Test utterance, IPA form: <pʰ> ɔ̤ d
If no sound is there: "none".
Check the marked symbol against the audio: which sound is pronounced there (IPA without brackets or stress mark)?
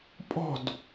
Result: pʼ